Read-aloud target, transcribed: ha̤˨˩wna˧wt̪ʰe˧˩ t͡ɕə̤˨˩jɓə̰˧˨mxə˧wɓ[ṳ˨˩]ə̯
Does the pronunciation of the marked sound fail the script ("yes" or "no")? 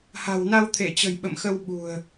no